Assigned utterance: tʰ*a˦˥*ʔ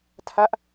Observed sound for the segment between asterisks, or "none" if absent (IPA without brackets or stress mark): a˦˥